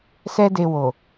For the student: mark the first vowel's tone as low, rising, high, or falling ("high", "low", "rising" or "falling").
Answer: high